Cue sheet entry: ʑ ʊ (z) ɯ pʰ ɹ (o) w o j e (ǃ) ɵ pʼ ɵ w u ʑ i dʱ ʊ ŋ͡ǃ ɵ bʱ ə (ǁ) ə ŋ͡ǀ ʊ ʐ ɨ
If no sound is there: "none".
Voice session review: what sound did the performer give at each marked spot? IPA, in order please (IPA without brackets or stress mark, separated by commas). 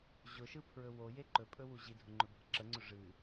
ʃ, ɵ, ǃ, ǁ